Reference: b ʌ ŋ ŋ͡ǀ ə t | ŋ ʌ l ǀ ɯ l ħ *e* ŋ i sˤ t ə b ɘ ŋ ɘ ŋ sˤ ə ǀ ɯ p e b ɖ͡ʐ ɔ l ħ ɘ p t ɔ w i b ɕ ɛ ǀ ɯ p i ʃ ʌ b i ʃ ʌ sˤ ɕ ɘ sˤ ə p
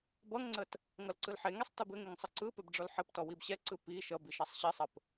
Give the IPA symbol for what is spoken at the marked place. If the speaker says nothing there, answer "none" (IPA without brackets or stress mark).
e